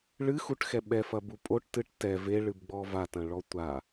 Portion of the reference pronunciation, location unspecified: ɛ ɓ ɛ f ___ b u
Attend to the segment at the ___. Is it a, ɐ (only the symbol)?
ɐ